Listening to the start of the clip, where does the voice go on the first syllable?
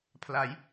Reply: rising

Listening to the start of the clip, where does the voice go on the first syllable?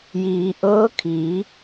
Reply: low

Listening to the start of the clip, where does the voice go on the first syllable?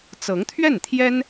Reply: rising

